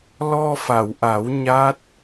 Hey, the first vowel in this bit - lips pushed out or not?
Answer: yes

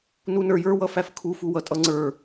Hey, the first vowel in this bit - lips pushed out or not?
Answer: yes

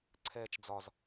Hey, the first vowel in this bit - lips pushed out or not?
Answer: no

